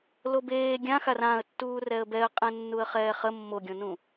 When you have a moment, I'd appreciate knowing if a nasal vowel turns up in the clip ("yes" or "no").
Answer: yes